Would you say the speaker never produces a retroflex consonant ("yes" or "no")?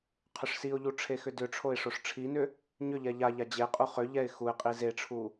no